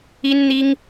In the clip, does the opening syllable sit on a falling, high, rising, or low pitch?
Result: high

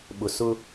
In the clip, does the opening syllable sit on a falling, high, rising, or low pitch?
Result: low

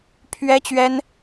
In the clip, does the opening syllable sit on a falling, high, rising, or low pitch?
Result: high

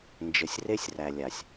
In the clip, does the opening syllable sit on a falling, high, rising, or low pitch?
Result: low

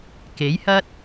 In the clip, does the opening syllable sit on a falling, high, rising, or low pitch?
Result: rising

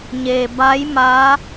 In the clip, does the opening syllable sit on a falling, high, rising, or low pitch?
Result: low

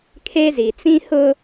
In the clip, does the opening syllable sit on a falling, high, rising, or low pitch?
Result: high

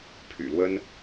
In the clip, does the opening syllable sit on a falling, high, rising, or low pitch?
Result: low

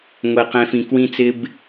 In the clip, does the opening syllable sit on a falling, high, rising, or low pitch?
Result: low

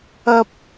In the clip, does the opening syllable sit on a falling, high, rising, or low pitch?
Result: high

